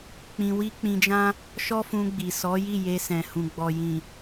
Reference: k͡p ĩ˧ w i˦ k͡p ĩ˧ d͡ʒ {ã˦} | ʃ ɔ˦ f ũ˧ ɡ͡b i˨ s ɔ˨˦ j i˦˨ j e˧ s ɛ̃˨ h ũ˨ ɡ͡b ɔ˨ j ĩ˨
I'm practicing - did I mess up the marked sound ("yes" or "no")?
no